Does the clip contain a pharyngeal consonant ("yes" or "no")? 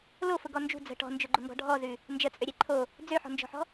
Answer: yes